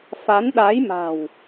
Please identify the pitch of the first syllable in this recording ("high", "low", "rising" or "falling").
rising